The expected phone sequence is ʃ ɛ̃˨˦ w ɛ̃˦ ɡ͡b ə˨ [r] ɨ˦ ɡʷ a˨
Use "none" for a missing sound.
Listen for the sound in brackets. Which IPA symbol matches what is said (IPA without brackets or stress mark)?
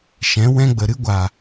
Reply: ɾ